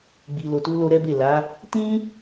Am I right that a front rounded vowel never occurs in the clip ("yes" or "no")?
yes